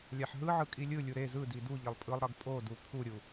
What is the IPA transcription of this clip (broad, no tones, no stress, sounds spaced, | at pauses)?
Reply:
lʲ a ħ ɦ ɯ ʕ ɯ kʼ i lʲ ɯ lʲ u ɾ e z ɯ d i d u ʎ e lˠ pʼ ɯ lˠ ɾ ʌ ɡ pʼ o d u pʰ u ɾʲ u